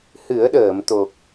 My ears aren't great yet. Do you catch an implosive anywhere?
yes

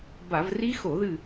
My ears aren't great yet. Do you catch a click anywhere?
no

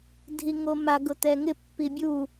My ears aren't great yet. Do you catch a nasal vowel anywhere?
no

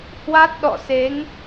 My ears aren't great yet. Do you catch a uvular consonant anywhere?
no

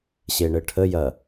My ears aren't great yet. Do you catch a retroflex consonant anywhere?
yes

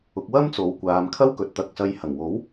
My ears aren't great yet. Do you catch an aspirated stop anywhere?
yes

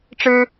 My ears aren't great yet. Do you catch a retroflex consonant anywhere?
yes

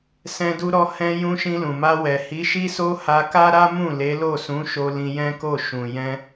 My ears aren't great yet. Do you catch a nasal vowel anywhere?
yes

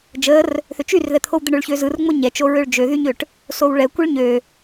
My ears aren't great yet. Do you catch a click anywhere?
no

